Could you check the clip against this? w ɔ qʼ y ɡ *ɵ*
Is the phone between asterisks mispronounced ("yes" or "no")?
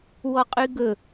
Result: no